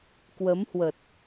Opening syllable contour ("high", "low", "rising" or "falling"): rising